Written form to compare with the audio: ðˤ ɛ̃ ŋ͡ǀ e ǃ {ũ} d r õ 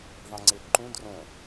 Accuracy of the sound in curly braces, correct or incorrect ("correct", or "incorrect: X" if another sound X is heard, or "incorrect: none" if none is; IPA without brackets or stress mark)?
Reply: correct